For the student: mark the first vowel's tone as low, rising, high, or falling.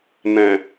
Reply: low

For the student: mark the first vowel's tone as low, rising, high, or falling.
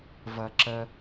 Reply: low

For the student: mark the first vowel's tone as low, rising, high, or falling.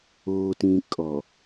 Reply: low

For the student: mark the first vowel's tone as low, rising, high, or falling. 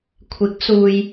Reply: rising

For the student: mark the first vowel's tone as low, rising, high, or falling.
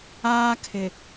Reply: high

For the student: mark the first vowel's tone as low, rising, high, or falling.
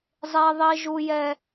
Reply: high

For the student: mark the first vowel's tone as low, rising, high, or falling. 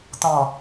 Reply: low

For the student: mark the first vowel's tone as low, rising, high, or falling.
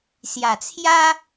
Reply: low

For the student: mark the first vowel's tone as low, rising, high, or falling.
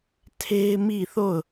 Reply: high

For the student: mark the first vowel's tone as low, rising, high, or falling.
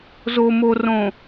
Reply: low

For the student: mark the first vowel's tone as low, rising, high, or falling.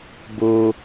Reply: low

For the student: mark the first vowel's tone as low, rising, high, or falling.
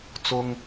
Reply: high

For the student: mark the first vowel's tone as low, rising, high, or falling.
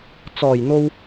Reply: low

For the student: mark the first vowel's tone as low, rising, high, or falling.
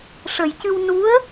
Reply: low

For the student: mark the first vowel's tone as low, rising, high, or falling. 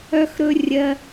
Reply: high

